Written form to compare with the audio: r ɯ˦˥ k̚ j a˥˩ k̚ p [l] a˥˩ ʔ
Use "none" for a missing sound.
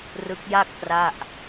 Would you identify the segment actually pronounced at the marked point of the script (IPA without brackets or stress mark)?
r